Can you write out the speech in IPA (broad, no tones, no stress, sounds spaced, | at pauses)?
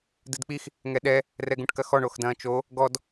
d ɨ d k͡p i x | ŋ ɛ ɗ ɛ | r ɛ ɡ ũ ʈ k ɐ x ɔ ɳ o x d ɐ̃ː t͡ʃ o | ɡ ɔ d